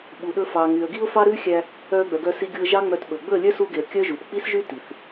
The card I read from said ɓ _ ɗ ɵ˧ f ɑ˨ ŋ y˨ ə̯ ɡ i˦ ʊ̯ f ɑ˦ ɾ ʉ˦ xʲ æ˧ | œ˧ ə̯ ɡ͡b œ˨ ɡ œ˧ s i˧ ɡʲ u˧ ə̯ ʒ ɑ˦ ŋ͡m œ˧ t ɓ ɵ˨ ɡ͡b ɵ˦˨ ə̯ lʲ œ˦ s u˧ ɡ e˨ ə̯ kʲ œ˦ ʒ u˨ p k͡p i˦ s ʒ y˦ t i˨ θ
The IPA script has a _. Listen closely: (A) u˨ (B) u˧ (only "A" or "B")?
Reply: A